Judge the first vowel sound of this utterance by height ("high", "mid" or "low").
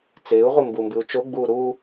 high